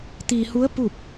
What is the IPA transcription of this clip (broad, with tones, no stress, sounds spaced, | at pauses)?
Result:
t̪ iː˧ h u˧˥ ə̯ p u˥˨ p̚